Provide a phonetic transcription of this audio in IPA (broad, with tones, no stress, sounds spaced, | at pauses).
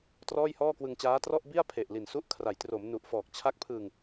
t r ɔː˥˩ j h ɔː˥˩ k w ɯ˧ ŋ t͡ɕ aː˦˥ t r ɔ˥˩ ʔ b i˥˩ a̯ pʰ e˨˩ ʔ l i˨˩ n s u˦˥ ʔ kʰ r a˩˦ j t r o˩˦ m n u˨˩ ʔ f ɔː˨˩ k̚ t͡ɕʰ a˦˥ k̚ pʰ ɯ˧ ŋ